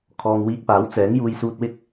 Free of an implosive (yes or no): yes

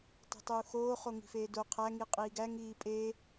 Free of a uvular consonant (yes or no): no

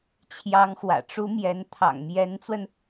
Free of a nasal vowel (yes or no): yes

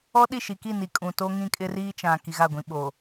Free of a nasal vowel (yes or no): no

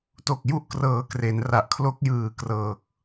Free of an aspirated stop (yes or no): no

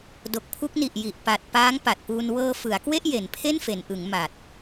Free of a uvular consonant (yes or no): yes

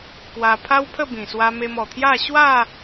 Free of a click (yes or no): yes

